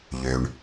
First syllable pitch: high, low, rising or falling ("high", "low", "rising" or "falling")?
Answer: low